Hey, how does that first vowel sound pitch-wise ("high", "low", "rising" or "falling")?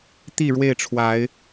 falling